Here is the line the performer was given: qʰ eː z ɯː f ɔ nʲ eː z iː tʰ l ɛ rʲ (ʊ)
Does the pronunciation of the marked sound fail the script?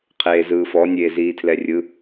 yes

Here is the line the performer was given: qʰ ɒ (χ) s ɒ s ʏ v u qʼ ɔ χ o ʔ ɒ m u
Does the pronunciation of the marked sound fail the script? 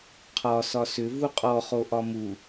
yes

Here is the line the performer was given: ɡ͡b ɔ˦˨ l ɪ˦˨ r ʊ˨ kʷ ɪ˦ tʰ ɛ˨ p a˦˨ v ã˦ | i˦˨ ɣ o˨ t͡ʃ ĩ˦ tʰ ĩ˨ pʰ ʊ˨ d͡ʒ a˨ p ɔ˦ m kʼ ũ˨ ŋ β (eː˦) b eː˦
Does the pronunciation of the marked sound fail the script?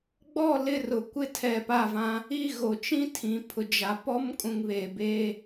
yes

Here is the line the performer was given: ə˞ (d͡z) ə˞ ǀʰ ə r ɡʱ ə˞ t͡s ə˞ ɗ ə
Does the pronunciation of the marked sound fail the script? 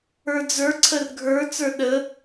no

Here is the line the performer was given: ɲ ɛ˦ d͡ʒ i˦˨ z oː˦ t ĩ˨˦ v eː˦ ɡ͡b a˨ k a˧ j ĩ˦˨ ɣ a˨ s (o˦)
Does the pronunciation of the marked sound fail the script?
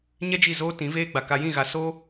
yes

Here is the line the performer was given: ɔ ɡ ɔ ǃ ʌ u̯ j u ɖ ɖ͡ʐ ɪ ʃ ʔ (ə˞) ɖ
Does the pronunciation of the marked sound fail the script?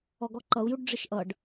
yes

